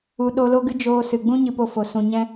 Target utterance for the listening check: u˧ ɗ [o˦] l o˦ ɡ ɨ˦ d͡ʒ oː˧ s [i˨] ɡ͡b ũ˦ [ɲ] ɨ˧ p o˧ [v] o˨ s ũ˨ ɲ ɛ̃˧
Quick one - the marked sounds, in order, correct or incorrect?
incorrect: o˧, incorrect: ɨ˨, correct, incorrect: f

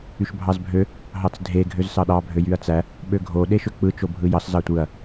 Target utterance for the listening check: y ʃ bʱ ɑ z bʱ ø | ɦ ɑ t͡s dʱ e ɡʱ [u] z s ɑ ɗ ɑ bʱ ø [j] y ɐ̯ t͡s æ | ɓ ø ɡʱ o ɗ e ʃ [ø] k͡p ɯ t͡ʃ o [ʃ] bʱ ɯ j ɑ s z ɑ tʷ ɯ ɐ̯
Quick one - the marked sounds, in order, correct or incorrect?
incorrect: ø, correct, correct, incorrect: none

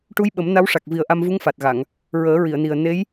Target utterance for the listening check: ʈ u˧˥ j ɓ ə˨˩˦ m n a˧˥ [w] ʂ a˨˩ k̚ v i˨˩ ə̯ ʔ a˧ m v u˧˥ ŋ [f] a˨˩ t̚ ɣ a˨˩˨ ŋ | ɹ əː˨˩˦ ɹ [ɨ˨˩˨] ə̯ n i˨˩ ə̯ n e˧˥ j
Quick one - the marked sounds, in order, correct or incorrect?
correct, correct, incorrect: i˨˩˨

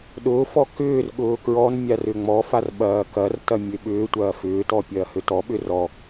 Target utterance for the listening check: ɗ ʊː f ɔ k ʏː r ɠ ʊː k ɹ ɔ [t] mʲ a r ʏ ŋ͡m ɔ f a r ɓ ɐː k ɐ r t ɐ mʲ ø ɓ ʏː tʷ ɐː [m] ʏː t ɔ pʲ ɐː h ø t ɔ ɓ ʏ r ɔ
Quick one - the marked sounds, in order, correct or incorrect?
incorrect: n, incorrect: f

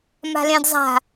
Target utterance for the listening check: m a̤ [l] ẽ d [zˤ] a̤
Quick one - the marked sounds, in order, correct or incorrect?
correct, correct

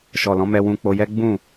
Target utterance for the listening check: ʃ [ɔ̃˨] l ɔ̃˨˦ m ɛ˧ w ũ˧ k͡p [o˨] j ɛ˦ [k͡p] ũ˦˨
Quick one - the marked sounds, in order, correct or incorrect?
incorrect: ɔ˨, incorrect: o˧, incorrect: ɡ͡b

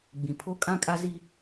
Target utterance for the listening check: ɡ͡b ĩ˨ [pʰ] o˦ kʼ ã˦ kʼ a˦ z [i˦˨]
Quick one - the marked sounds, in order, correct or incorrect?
correct, incorrect: i˦

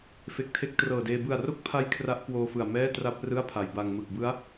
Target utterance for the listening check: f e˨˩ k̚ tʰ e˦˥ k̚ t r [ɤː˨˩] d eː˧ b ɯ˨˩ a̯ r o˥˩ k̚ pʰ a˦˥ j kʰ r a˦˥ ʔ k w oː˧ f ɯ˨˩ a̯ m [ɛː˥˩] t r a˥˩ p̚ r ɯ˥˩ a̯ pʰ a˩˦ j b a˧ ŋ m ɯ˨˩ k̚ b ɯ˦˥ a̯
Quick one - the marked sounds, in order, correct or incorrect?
correct, correct

